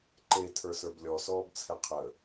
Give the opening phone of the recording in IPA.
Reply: ǃ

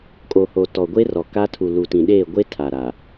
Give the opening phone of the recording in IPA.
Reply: kʼ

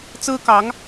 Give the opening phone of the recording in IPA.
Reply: t͡s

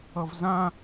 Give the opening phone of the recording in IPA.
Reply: ʌ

